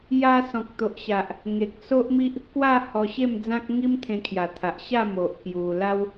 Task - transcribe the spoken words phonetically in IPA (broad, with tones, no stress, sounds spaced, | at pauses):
j a˧ s ɔ̃˨ k̚ t̪ o˨ ʔ ɕ a˨ ʔ | ŋ e˨ k̚ s o˦ ʔ m i˦ ʔ | k w a˥˧ h ɔ˧ ɕ e˥˧ m d͡z ã˦ k̚ ŋ i˦ m t̪ʰ ẽ˧ kʰ j a˨˩ t̪ʰ a˨ ʔ ɕ a˥˧ m o˨ ʔ k j u˧ l a˦ w